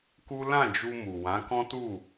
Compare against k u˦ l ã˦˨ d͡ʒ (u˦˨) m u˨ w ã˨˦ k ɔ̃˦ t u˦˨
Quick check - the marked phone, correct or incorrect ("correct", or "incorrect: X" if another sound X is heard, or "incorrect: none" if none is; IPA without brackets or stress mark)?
incorrect: u˧